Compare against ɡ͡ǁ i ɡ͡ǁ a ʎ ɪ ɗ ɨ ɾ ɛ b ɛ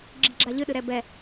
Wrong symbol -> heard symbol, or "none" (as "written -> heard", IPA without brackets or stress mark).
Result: ɪ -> ɨ